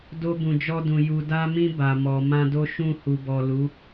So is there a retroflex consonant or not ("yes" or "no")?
no